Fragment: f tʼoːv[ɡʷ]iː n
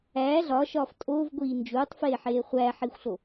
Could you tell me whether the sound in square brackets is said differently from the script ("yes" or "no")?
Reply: no